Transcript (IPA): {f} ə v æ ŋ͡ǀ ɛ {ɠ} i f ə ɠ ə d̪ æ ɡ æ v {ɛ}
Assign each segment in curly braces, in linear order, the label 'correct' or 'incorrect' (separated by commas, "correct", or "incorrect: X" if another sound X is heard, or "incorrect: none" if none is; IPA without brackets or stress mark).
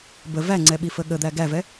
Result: incorrect: b, incorrect: ɓ, correct